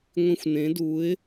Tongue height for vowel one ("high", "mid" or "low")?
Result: high